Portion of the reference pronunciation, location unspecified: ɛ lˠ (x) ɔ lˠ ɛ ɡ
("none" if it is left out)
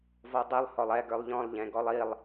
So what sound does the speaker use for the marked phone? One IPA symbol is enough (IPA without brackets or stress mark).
h